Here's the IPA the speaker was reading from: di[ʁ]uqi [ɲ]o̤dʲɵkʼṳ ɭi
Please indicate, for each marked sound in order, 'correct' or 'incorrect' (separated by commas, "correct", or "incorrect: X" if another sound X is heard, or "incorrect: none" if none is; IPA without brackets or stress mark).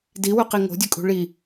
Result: incorrect: w, incorrect: ŋ